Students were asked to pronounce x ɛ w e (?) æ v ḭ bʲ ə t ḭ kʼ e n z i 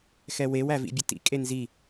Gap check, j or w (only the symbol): w